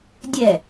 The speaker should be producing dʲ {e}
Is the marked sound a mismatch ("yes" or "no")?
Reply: yes